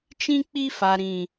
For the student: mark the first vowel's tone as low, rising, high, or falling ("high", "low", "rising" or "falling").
high